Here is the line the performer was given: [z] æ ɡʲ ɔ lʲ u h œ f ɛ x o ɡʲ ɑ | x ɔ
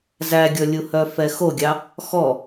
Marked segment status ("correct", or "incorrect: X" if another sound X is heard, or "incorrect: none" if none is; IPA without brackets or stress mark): correct